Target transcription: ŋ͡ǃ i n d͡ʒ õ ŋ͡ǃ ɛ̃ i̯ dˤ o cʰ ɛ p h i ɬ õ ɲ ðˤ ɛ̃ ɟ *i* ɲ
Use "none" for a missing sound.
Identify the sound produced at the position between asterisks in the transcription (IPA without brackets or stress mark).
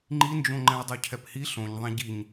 i